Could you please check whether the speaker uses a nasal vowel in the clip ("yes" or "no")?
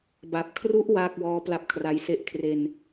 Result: no